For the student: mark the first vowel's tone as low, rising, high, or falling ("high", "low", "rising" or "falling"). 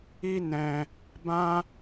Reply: high